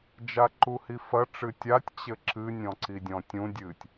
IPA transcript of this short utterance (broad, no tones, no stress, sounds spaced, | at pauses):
d͡ʒ a ǃ u h i f ɐ ʈ͡ʂ ɨ tʲ a tʲ t͡ɕ ɘ ǁ ɨ nʲ ɔ̃ ǀ i dʲ ɔ̃ tʲ ũ dʲ ɨ tʲ